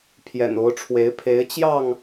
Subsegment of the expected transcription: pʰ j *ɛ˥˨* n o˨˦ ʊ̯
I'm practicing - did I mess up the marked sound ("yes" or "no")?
yes